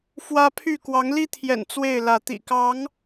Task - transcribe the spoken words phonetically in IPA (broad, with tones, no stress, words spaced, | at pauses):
fwä˦pʰy˥˨ kwɑ˨˦ŋli˦t̪ʰjɛ̰˨˩n t͡swe˥˨ɪ̯lä˨˦ t̪ḭ˨˩kɑ˨˦ŋ